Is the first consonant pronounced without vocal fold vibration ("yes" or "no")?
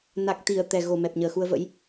no